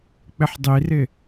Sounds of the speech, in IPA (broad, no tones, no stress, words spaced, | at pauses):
k͡pɪħdˤirɪ